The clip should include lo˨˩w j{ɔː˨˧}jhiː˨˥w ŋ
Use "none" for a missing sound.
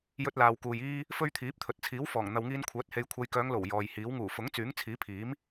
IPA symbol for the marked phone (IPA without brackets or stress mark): ɔː˨